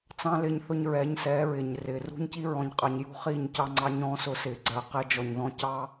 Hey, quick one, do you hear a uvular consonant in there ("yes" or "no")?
yes